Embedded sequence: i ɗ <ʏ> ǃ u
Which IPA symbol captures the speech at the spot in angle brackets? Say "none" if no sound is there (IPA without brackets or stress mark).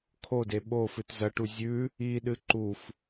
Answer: ɨ